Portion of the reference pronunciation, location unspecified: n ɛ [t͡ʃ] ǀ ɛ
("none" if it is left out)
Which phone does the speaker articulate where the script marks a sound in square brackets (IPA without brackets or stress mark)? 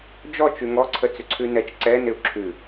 t͡ʃ